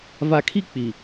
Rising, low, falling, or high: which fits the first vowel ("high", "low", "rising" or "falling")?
low